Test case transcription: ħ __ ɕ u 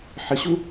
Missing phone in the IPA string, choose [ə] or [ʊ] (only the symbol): ə